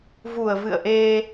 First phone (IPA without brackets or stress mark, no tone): v